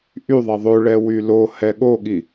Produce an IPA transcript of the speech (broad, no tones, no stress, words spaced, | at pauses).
ʔyðˤɛ ðˤøɭɛ wylohɛ ɠoɠi